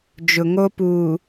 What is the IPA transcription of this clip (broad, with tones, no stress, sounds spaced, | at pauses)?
d͡ʒ ʊ˨ ŋ o˦ p uː˨